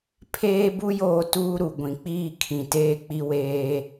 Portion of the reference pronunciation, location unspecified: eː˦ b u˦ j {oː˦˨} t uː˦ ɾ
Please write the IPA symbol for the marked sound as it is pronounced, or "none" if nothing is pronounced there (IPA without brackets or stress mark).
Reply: oː˦˨